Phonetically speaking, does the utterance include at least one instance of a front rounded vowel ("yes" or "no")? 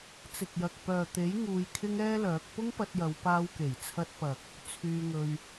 yes